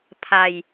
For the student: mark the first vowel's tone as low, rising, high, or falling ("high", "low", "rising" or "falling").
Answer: low